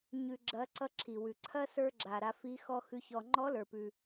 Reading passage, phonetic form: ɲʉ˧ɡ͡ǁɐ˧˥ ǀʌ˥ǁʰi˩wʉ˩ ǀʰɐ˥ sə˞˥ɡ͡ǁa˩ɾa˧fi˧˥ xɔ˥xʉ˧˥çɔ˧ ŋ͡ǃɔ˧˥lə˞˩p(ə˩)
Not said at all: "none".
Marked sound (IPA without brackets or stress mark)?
ʉ˩